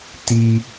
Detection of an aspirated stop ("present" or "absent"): absent